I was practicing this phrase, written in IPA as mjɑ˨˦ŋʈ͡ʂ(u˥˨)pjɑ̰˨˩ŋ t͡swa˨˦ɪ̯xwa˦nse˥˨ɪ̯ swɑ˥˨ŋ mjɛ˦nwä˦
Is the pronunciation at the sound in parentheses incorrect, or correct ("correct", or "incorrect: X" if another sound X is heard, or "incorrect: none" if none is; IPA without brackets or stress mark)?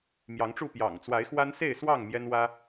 correct